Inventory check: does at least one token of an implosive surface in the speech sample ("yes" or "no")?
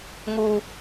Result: no